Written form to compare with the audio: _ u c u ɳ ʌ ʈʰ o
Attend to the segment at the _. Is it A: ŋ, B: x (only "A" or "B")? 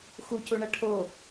B